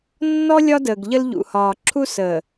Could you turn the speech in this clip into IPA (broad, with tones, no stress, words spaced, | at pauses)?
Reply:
nːɔ˦ lʲɒ˦dəː˨ɡʎə˦l ʎṵ˨hɒː˨ ǁʰu˦səː˨